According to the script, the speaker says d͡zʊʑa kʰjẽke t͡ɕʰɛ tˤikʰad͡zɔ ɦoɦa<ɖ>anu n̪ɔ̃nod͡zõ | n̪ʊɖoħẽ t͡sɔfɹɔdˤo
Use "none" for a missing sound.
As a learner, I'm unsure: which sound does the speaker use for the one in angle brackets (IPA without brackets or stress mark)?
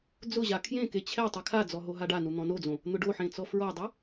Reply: ɖ